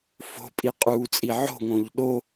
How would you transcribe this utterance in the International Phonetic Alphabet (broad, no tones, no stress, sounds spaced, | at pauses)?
f o̤ pʼ i qʼ uː t͡sʼ i ʕ o̤ ŋ õ ʎ ɗ o